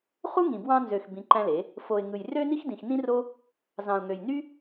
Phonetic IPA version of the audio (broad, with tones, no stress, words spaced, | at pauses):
χu˦ŋĩ˨ bwɑ̃˧nzø˨x bĩ˧ǃæ̃˦le˨˦ | fo˨ɪ̯ ŋɯ˨jrø˦ ni˦xdĩ˨xnĩ˦ro˦ | zɑ̃˨ʊ̯ŋø˨jny˦